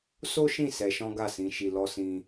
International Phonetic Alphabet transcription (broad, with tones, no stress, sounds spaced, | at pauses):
s o˦ ʃ ĩ˦˨ s ɛ˧ ʃ ɔ̃˦ ɡ a˦˨ s ĩ˧ ʃ i˧ l ɔ˦ s ĩ˦